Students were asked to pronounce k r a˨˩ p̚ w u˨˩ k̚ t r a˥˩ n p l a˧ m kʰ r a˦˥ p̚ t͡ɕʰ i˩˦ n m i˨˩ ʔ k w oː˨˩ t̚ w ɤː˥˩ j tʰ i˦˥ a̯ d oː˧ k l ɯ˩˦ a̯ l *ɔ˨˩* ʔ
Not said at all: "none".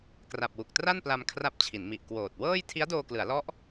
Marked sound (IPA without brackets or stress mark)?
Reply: ɔ˦˥